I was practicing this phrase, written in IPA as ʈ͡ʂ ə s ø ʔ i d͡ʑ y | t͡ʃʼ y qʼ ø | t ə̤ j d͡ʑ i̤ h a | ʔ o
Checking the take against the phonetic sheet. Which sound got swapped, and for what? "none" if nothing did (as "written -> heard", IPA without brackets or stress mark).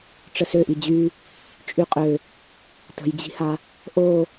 none